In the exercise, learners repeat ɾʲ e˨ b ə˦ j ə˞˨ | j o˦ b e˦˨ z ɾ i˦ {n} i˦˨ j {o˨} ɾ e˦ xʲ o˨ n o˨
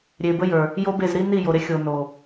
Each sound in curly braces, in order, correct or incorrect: correct, correct

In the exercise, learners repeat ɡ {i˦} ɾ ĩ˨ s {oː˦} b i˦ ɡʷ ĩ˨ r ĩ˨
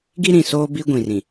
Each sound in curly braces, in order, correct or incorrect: correct, correct

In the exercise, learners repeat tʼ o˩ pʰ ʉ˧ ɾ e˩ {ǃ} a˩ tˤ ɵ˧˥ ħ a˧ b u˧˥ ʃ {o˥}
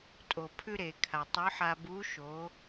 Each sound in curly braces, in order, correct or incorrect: incorrect: kʰ, incorrect: o˩˧

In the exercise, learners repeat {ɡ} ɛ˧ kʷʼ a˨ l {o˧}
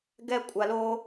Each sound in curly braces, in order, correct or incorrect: correct, correct

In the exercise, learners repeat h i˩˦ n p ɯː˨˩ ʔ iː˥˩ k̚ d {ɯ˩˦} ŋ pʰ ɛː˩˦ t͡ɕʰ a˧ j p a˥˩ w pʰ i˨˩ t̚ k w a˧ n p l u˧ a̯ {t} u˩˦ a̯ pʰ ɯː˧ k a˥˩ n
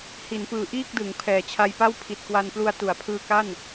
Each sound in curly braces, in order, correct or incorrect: correct, correct

